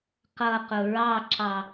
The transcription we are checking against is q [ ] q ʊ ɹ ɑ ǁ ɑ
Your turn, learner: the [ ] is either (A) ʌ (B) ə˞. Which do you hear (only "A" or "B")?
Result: A